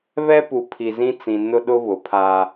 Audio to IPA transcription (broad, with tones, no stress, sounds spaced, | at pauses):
β ɛ˦ p u˨ pʰ i˨ z ĩ˦ t͡s ĩ˨ n ʊ˦ ɗ ʊ˦ β ʊ˨ pʰ a˦